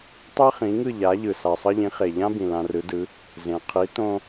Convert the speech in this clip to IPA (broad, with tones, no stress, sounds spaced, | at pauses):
tˤ ɛ˥ χ ĩ˩˥ ŋ ɯ˥˩ ʎ a˩˥ ʎ ɯ˩ s a˩ sˤ ʌ˧ ʎ ĩ˩˥ χ e˩ ʎ ã˥ b ĩ˩ l ã˧ r ɯ˩˥ d ɯ˩˥ | z ẽ˩ qʰ i˩˥ t õ˧